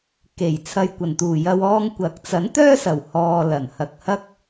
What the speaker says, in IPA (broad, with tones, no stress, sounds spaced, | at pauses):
k e˨˩ j t͡sʰ ɐ˨ j kʷ ɐ˨˩ n t̪ uː˨˩ j ɐ˧ w ɔː˧ ŋ kʷ ɐ˨˥ k̚ t͡s ɐ˨˥ n t̪ œː˥ s ɐ˨˩ w h ɔː˧ l ɐ˨˩ n h ɐ˨ k̚ h ɐ˥ k̚